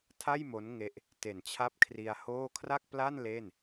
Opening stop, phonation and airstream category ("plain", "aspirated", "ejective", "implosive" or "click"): aspirated